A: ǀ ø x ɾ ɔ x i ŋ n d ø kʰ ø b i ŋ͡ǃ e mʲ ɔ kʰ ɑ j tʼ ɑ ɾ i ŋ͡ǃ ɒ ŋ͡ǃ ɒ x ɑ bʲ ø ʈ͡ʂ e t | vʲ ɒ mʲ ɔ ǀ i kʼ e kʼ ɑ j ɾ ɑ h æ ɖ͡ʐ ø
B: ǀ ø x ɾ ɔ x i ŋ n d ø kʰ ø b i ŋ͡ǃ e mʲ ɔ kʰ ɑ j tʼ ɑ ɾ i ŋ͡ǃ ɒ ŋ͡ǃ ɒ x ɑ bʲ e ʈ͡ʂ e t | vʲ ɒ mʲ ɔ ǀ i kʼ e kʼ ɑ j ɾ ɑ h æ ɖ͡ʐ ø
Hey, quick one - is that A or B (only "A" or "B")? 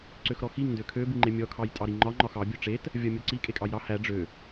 A